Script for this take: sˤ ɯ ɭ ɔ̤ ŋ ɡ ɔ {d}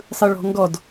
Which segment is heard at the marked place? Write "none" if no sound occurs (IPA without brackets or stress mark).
d